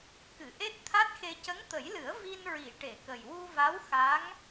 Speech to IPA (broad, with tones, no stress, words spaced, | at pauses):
kɨ˨˩˨ʔe˦˥t̚t̪ʰa˦˥t̚xe˧ cə˧˥ŋt̪ə˨˩˦jlɨ˨˩˦ə̯ vi˧nɹi˨˩˨ ʈe˨˩˨kə˨˩j wu˧va˧˥wxa˧˥ŋ